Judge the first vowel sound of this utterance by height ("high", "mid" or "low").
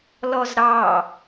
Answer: mid